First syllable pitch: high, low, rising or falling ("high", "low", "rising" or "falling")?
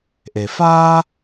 low